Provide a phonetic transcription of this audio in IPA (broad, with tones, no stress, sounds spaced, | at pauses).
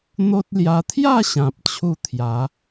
n̪ o˦ t̚ l j a˧ t̪ʰ j a˥˧ ɕ ã˨ p̚ t͡ɕʰ u˥˧ t̪ʰ j a˨˦